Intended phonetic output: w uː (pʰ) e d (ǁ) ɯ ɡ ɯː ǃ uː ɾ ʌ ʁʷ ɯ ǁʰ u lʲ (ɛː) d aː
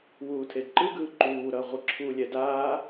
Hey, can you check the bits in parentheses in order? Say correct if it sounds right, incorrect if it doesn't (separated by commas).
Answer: incorrect, incorrect, incorrect